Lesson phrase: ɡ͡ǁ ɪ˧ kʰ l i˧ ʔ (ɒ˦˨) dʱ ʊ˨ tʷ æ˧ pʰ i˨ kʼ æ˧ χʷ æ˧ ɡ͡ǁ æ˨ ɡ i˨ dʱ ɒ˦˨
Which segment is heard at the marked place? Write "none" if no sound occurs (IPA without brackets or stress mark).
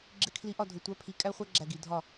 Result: ɒ˦˨